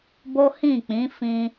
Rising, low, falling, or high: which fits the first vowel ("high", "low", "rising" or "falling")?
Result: high